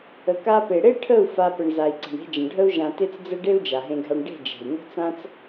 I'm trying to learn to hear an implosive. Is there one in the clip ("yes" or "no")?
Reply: no